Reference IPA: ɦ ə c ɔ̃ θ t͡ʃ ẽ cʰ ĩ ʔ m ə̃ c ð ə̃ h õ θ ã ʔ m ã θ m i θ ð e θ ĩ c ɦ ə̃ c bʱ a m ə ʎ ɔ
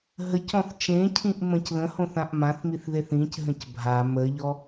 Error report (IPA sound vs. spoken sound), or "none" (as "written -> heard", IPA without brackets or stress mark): none